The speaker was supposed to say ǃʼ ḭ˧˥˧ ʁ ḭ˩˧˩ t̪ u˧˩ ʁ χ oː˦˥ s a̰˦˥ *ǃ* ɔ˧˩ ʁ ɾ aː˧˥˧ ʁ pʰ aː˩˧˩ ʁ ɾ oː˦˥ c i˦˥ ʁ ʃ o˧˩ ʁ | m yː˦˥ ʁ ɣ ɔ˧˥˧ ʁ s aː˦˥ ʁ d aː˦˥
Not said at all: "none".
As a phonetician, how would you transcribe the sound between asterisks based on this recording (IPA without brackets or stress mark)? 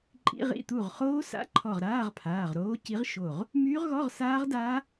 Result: ǃʰ